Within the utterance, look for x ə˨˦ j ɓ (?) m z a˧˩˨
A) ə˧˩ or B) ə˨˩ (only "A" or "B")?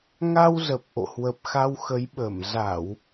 A